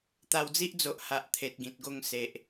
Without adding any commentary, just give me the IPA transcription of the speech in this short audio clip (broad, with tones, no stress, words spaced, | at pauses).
t̪a˧wd͡zi˦ʔd͡zo˨ʔ ha˨ʔ t̪ʰe˨t̚ɡĩ˨t̚ɡo˧ŋ se˨ʔ